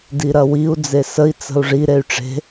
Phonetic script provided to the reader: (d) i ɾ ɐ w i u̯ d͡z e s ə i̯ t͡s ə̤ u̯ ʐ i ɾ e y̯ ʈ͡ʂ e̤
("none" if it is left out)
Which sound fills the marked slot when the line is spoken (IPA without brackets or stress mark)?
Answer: d